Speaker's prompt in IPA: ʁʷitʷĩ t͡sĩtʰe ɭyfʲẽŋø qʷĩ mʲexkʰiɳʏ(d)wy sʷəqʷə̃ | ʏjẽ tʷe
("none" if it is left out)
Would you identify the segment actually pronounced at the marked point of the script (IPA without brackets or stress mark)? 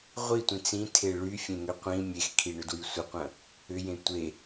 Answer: d